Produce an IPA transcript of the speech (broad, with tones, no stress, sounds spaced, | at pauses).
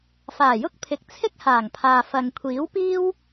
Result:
f aː˨˩ j ʊ˥ k̚ pʰ ɪ˨ k̚ t͡sʰ ɪ˥ k̚ h aː˨˩ ŋ pʰ aː˨ f ɐ˨ ŋ kʷʰ iː˨˥ w p iː˥ w